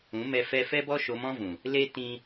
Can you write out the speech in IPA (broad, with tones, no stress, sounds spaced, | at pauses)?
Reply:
ũ˨˦ m ɛ˧ f ɛ˧ f ɛ˦ b ɔ˦ ʃ o˧ m ɔ̃˦ v ũ˨ | l e˦ t ĩ˦